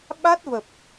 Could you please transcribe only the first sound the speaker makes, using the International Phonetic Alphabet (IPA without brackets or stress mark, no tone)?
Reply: ɓ